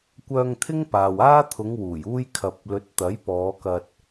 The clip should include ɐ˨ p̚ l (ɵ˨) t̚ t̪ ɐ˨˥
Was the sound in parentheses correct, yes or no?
no